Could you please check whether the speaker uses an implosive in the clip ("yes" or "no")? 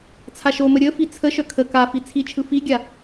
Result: no